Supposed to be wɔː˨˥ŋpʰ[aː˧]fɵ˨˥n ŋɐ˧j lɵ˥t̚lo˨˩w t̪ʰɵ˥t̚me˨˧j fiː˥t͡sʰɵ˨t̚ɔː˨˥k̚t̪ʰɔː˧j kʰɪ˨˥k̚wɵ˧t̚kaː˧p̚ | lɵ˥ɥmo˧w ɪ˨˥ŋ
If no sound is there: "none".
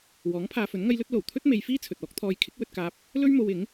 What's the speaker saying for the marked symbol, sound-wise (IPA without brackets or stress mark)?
aː˧